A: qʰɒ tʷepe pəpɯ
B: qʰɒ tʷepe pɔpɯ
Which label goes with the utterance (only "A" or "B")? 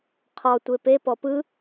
B